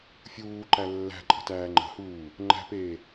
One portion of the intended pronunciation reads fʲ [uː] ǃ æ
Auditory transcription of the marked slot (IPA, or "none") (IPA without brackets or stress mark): uː